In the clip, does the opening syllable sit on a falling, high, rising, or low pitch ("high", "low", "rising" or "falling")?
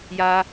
high